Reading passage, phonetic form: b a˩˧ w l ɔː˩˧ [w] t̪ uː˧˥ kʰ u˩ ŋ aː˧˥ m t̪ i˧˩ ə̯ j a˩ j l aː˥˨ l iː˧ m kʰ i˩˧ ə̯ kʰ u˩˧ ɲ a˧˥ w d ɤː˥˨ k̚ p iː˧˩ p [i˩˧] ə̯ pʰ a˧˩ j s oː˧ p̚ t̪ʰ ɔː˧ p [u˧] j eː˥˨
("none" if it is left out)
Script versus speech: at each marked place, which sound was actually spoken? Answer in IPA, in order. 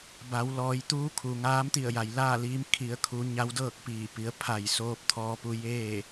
j, i˩˧, u˧

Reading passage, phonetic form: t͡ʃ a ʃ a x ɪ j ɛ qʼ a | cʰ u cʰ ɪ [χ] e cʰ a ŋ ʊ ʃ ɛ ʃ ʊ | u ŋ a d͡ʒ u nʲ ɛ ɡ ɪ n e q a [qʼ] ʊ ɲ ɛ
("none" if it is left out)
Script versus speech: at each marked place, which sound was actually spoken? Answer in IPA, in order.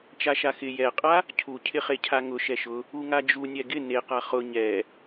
χ, χ

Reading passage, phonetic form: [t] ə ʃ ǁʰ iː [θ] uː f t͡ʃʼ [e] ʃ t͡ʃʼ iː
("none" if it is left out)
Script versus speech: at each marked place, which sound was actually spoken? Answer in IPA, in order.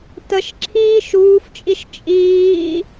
t, ʃ, i

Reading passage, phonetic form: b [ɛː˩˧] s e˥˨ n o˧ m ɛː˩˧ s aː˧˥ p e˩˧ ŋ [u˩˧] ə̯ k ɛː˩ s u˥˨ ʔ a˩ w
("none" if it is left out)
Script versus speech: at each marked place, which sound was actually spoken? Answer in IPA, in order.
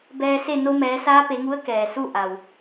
ɛː˧, u˧˥

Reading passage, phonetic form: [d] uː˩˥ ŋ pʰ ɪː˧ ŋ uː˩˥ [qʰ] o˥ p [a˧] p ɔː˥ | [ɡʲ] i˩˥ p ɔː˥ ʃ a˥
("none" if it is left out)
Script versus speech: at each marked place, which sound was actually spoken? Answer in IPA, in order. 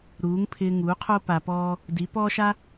ɾ, qʰ, a˧, d

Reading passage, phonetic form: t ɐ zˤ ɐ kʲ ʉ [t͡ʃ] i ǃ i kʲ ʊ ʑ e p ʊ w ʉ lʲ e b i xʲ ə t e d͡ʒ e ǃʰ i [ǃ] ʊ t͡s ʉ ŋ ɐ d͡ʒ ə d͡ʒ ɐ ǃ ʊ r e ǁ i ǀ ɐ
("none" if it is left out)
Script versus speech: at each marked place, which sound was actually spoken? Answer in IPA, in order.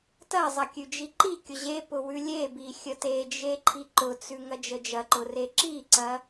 d͡ʒ, ǃ

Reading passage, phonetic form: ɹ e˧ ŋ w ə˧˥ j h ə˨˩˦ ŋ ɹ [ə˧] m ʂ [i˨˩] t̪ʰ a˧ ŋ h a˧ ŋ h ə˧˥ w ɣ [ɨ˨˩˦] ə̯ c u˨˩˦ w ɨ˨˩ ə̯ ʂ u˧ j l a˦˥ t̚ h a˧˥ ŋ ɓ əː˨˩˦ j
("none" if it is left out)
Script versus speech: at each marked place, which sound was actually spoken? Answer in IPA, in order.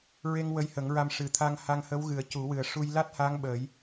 a˧, ɨ˨˩, ɨ˨˩˦

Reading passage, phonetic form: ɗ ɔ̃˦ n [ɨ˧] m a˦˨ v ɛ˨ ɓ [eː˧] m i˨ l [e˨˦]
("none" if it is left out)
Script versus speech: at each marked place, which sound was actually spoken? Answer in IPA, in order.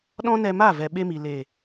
ɛ˧, e˧, e˨

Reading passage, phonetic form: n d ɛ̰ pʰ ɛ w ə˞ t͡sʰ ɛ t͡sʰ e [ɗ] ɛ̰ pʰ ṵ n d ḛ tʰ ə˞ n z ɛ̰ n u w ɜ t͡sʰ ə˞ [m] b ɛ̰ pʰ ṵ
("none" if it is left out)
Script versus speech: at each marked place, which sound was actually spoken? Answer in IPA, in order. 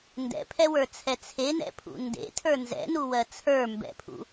n, m

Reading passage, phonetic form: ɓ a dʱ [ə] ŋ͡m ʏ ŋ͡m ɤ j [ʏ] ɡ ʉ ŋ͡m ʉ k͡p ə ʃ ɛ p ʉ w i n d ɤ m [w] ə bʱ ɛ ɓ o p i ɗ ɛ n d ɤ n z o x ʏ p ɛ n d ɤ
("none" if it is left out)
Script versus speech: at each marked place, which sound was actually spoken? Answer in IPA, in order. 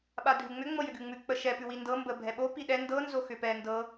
ʉ, ʏ, b

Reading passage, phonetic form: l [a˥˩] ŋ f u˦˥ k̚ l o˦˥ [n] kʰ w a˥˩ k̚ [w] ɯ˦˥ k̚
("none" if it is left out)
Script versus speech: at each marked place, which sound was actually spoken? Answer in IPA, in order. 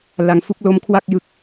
a˨˩, m, j

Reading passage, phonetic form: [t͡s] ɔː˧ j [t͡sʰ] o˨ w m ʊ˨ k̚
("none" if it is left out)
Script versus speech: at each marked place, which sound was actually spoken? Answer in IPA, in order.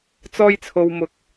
t͡s, t͡sʰ

